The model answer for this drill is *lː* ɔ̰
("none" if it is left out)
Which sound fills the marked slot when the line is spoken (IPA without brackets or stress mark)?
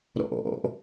ɾ